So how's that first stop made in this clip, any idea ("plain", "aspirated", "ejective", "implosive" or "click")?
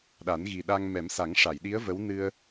implosive